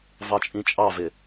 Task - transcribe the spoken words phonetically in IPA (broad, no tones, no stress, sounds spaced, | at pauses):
v ɑ t͡ʃʼ ĩ t͡ʃʼ ɑ v ɪ